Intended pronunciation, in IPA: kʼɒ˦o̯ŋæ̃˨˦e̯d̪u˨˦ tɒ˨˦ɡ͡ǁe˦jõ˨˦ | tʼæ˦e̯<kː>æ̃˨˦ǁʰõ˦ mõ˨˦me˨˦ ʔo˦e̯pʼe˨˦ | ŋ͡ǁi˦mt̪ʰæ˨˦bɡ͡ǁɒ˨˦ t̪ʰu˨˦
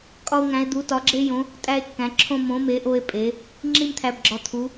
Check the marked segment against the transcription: correct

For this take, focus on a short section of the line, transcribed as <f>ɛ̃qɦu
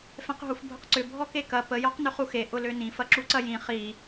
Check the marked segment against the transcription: correct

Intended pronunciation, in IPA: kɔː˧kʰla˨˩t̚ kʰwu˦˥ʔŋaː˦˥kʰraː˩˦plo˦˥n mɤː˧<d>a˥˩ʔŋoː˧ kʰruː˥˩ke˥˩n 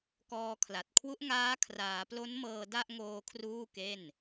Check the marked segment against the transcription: correct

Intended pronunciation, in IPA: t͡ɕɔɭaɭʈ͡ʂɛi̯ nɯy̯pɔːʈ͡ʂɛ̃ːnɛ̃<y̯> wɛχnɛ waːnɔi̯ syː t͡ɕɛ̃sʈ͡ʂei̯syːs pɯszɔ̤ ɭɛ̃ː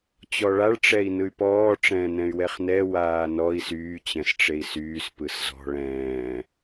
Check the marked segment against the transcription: correct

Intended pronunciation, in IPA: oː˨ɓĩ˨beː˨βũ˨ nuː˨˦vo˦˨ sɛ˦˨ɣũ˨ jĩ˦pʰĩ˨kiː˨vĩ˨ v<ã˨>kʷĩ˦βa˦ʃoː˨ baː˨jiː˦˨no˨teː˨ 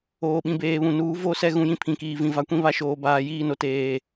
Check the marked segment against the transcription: incorrect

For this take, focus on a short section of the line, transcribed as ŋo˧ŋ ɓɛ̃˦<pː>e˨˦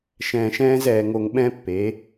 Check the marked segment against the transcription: correct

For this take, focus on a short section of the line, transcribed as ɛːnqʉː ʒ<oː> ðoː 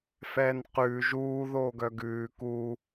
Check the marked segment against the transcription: incorrect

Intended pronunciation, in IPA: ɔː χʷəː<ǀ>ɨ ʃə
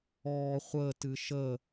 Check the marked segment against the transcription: incorrect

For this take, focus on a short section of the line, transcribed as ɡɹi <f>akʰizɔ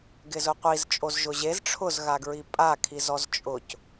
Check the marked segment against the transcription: incorrect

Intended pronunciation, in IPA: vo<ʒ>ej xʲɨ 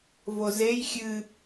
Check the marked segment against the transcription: incorrect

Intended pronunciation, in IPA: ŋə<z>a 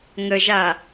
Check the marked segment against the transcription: incorrect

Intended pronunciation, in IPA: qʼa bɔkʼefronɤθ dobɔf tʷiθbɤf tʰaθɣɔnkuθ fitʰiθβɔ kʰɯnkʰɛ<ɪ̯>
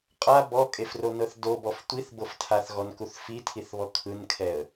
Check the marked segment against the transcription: incorrect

